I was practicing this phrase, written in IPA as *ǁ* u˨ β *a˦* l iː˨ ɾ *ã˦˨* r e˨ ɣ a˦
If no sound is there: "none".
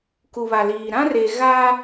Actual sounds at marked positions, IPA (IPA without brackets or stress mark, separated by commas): k, a˨, ã˦